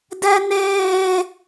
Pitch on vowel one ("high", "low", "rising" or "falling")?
high